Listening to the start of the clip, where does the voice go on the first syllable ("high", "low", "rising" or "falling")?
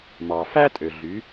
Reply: low